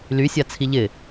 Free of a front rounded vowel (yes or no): no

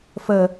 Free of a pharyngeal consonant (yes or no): yes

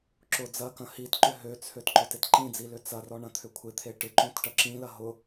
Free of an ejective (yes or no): yes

